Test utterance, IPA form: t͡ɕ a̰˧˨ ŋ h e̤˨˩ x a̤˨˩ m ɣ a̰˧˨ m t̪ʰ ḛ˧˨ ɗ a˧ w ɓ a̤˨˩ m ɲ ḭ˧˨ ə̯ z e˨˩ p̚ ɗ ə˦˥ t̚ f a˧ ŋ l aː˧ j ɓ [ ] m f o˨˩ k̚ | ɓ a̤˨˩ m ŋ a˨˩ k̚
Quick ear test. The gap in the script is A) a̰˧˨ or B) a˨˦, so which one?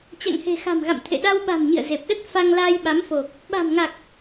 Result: B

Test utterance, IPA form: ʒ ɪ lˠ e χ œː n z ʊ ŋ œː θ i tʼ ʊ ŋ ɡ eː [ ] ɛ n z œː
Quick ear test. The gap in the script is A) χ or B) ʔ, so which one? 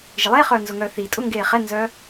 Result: A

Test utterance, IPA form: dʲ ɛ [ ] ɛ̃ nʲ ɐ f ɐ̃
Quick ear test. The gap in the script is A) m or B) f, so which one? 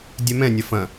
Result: A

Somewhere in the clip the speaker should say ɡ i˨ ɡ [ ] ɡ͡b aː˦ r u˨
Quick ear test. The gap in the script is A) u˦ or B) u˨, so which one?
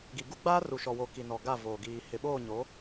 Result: A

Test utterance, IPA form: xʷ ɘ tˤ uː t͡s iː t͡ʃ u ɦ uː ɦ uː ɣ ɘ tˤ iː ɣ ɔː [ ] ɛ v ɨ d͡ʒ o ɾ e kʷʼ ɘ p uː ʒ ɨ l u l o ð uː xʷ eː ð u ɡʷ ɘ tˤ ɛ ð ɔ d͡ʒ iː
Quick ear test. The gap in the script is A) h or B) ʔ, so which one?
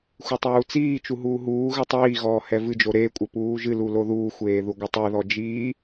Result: A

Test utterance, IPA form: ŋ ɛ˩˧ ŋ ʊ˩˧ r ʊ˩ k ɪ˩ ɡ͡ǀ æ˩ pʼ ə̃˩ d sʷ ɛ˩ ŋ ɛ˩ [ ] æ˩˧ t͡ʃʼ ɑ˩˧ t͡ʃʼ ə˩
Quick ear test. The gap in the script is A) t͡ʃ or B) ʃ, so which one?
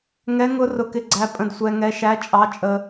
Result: B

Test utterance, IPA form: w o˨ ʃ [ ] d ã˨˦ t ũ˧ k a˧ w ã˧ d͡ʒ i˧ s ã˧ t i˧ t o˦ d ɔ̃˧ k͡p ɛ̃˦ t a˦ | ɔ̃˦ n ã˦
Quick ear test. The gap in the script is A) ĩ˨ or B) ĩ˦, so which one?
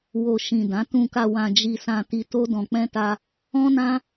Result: A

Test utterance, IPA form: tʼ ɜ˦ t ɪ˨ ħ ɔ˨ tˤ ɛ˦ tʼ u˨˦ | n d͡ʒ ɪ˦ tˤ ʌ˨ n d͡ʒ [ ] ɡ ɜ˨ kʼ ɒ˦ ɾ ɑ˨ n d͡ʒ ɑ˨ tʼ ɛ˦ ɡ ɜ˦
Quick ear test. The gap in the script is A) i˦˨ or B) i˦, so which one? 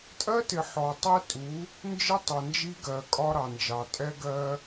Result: B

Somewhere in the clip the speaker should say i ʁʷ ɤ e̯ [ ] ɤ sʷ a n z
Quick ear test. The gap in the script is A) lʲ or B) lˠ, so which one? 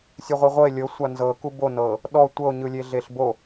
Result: A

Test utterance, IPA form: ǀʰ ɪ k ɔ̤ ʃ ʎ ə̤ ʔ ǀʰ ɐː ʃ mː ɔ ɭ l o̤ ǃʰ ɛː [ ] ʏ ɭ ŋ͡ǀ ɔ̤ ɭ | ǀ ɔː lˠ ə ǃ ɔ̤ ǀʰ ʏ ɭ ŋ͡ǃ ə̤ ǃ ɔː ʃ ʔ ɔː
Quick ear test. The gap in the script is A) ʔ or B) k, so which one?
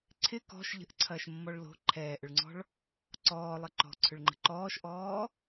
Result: A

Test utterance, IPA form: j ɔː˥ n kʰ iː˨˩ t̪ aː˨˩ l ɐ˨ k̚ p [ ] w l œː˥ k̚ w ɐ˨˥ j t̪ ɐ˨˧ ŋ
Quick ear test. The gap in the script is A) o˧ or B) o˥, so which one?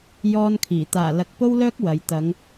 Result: B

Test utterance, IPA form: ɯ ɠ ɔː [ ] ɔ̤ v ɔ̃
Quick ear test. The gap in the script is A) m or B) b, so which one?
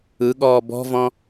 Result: B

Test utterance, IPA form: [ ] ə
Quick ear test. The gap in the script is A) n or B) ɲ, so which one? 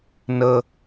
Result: A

